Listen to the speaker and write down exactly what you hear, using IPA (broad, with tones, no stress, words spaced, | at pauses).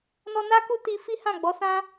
nɔ˧na˦ku˦ ti˧ fi˦hã˦˨ɡ͡bɔ˨˦sã˦